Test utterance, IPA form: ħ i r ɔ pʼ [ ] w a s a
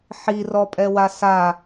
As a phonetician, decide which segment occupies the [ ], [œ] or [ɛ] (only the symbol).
ɛ